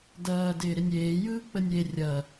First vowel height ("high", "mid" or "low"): low